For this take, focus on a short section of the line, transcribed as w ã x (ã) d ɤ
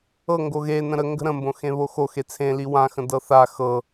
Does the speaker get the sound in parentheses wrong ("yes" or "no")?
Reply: yes